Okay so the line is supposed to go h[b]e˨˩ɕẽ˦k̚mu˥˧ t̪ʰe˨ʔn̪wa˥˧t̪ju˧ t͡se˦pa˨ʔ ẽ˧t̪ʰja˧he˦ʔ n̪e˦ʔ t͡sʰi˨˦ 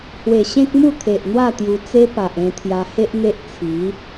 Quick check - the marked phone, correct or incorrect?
incorrect